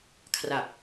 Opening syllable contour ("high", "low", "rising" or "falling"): low